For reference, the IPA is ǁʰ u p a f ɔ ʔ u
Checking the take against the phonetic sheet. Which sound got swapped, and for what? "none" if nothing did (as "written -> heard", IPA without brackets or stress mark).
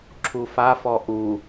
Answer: p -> f